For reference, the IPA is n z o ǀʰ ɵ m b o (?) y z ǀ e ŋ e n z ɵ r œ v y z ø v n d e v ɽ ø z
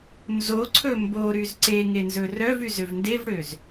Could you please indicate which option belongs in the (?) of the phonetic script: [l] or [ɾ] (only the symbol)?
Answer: ɾ